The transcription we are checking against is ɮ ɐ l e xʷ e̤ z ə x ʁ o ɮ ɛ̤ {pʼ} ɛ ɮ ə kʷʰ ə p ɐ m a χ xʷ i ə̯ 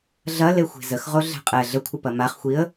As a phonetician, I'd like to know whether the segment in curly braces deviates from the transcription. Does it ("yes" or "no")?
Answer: yes